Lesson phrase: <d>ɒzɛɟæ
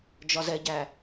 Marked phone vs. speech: incorrect: d͡ʒ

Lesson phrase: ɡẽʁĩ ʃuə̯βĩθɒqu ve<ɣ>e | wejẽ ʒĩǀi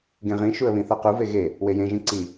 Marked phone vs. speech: correct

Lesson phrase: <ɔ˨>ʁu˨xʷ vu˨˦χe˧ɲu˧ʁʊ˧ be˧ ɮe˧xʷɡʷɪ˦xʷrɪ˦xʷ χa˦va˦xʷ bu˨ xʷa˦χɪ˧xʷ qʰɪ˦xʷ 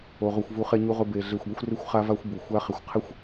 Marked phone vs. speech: incorrect: o˨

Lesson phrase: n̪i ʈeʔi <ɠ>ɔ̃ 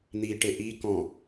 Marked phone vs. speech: incorrect: k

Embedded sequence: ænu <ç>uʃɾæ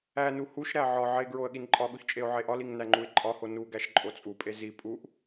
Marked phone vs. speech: incorrect: h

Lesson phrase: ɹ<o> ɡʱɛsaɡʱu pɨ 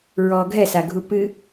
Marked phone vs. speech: incorrect: ɔ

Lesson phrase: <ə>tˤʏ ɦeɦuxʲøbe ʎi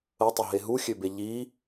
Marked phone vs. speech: correct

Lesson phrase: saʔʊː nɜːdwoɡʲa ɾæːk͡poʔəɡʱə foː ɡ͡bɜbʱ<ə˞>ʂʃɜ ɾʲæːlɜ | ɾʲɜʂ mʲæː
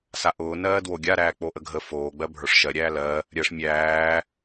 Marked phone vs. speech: correct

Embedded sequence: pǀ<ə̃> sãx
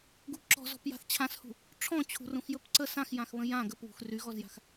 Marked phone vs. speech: incorrect: ə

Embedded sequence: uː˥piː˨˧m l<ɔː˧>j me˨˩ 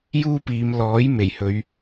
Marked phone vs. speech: incorrect: ɔː˨˥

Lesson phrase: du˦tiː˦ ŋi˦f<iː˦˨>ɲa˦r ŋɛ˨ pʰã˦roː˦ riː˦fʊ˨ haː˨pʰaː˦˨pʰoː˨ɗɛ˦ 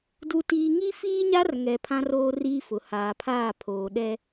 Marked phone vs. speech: incorrect: iː˦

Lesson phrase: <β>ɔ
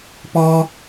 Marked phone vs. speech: incorrect: p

